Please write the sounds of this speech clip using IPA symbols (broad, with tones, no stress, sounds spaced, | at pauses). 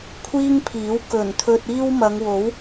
kʷʰ iː˥ ŋ pʰ iː˨˥ w k ɵ˨˩ n t̪ʰ ɵ˧ t̚ iː˥ w m ɐ˨˧ ŋ w o˨˥ w